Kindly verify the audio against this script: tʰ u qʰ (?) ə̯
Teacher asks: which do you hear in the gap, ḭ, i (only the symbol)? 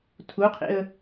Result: ḭ